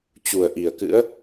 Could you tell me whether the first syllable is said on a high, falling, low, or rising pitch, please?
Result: low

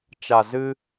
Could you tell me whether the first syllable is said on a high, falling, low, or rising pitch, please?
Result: low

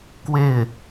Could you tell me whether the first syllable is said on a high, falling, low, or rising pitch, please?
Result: falling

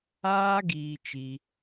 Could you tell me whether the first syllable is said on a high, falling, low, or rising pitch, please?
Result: high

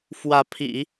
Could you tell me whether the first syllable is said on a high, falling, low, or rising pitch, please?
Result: rising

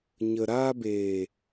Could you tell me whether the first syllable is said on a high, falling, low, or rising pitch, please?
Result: low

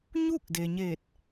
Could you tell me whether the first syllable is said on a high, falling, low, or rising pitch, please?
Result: falling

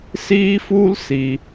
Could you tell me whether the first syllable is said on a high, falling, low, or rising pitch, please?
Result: high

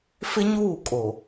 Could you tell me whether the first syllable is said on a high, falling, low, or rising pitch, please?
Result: high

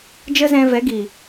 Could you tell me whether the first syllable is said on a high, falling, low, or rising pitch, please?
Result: high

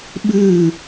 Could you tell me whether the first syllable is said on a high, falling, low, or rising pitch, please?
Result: falling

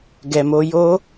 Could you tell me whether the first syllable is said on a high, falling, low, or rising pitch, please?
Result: low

